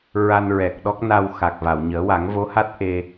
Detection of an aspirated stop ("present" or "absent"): absent